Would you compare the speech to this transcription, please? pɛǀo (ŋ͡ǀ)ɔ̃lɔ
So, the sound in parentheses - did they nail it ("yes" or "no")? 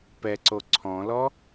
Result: no